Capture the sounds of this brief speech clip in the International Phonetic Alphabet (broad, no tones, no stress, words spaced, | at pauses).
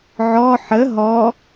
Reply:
ʕɔ ħə ɦɔ